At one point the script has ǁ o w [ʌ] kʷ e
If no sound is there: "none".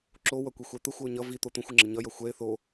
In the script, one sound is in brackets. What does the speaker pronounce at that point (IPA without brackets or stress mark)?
ʌ